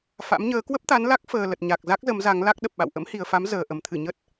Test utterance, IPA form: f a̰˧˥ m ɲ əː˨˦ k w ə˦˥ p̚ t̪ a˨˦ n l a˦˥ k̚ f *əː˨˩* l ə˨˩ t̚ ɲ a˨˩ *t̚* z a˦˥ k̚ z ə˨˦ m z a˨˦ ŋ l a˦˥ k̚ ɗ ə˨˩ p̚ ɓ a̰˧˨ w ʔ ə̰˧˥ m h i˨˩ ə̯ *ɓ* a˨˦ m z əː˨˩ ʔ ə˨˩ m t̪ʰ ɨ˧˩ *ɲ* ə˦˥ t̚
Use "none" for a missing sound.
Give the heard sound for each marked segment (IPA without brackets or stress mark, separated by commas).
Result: əː˨˩, k̚, f, ɲ